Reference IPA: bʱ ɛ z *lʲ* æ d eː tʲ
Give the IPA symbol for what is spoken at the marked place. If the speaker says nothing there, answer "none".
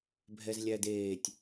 lʲ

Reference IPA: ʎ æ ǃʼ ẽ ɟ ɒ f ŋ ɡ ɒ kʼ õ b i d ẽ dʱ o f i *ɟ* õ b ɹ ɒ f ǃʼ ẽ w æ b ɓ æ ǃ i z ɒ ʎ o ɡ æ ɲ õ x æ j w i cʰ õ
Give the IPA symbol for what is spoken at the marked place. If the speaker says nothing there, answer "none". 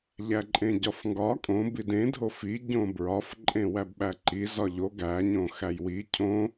ɟ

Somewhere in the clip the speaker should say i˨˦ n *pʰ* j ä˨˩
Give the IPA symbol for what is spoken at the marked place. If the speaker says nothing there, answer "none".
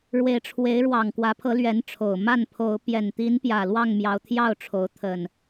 p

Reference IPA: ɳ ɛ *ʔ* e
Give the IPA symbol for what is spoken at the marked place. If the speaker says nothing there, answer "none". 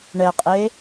qʼ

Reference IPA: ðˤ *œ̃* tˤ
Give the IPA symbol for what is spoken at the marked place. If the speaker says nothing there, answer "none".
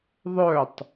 œ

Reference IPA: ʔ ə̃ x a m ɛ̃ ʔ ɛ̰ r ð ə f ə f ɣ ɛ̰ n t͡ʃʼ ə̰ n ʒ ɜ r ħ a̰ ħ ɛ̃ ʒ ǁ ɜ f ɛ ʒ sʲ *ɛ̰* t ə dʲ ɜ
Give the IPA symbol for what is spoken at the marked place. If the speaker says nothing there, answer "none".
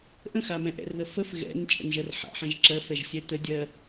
ɛ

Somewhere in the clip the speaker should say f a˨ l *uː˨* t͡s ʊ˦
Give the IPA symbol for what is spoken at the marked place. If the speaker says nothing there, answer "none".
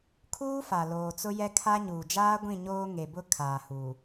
oː˨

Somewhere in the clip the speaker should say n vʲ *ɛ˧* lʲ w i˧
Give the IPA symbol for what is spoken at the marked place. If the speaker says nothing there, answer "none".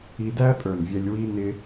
ɛ˧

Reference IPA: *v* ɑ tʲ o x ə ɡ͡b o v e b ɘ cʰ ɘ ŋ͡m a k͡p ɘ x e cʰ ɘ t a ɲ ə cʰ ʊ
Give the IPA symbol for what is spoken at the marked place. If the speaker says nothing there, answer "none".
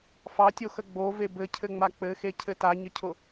f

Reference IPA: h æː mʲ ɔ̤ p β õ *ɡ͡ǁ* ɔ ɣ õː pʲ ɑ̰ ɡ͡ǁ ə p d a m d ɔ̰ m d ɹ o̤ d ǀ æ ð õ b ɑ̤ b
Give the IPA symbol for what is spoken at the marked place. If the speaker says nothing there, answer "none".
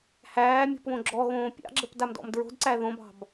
ɡ͡ǁ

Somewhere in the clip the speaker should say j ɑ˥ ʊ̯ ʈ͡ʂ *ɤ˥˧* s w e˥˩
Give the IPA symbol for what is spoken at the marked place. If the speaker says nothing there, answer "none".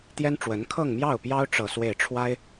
ɤ˥˧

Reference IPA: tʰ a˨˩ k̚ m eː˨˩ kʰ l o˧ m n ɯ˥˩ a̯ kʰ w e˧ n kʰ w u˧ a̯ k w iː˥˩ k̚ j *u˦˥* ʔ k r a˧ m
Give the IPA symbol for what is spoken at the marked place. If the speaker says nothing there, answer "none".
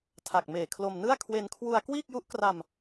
u˦˥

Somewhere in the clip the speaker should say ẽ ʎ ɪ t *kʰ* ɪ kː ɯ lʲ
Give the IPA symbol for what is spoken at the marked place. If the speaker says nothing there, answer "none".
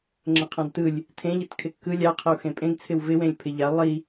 kʰ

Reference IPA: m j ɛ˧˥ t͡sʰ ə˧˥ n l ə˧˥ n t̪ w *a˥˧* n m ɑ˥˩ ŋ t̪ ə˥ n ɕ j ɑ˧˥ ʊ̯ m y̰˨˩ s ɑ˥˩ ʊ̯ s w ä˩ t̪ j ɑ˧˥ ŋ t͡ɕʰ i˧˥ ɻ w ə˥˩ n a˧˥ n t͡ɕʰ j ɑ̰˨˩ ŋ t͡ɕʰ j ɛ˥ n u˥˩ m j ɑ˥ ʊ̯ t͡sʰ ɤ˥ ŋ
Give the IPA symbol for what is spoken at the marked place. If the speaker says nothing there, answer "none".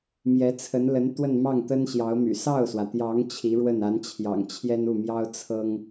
ə˥˧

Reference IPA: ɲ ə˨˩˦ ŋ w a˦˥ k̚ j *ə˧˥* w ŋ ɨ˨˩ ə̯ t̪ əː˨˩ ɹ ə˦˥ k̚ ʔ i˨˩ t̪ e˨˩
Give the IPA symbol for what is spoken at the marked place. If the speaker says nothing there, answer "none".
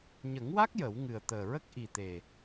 ə˨˩˦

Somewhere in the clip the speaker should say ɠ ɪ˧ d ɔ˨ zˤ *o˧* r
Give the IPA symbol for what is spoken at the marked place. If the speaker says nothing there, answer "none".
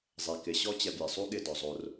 o˧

